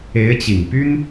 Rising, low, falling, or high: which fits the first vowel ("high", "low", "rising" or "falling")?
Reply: rising